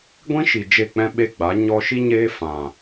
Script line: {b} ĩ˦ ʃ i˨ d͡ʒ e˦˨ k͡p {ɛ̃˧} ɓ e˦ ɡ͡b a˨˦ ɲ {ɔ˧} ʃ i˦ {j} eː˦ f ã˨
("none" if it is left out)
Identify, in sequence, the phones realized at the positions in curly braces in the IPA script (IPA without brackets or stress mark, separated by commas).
ɡʷ, ɛ̃˦, ɔ˧, ɲ